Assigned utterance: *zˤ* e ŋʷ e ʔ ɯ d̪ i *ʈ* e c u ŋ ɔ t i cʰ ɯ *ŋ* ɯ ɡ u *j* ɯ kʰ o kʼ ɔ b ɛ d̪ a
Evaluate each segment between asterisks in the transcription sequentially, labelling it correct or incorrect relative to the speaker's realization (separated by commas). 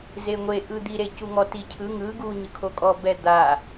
incorrect, incorrect, correct, incorrect